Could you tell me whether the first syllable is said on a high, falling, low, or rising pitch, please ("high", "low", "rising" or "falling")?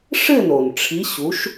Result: falling